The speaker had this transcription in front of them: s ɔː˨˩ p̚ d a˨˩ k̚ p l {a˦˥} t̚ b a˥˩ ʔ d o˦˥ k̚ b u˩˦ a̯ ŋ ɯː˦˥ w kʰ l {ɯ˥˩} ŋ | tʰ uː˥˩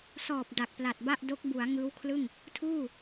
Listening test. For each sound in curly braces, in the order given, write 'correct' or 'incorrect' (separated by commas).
incorrect, correct